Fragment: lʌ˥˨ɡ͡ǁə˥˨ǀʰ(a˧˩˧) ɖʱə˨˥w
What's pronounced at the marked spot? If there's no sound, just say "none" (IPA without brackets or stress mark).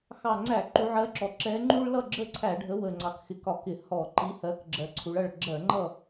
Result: æ˧˩˧